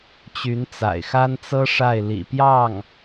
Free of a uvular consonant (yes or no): yes